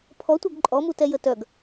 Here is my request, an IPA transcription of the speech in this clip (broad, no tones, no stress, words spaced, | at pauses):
pʰɔtʷœɡ ǃʼɔmutɛ jətœɡ